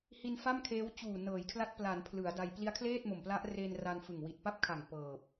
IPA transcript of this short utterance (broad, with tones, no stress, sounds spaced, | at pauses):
h i˧ n f a˥˩ m kʰ eː˦˥ w t͡ɕ uː˨˩ n ɤː˩˦ j kʰ l a˦˥ t̚ p l a˩˦ n pʰ l ɯ˩˦ a̯ d a˧ j p l i˦˥ a̯ kʰ l eː˥˩ t̚ m o˨˩ m p l a˦˥ ʔ r e˧ n r a˧ n f ɯ˨˩ ŋ w i˨˩ t̚ p a˥˩ p̚ kʰ a˨˩ ŋ p ɤː˨˩ p̚